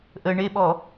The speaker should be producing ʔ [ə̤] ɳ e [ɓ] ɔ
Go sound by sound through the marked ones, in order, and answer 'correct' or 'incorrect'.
incorrect, correct

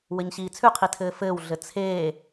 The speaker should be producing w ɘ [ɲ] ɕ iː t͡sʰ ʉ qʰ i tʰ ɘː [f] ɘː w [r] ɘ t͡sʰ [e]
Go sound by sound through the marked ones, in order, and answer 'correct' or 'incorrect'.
correct, correct, incorrect, incorrect

